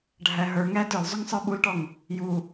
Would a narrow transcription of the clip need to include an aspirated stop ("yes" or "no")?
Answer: no